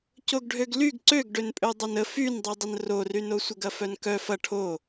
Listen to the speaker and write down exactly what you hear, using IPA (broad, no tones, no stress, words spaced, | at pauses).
coɡɖʱøɡlyɡ ǀøɡ ɖønpʼødˤɐnə fyndˤydˤən roryno sʷəɡɐfœnkœ fɐ ʈʰo